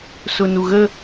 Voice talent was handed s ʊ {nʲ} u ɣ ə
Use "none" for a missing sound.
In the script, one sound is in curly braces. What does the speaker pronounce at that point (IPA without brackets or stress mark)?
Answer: n